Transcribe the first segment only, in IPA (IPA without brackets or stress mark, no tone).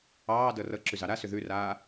ɑː